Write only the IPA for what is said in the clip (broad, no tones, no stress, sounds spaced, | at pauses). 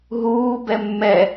ɦ uː b ɛ mː ɛ